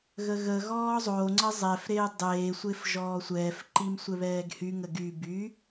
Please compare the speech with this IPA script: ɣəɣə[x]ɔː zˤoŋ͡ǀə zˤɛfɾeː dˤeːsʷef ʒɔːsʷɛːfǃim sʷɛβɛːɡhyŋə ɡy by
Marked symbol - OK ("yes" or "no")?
no